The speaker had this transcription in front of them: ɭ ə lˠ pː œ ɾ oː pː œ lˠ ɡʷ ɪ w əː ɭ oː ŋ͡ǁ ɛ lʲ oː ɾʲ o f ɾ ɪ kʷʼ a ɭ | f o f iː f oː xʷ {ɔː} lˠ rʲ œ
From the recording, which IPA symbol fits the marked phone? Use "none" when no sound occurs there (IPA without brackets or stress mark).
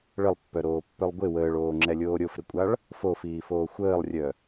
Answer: əː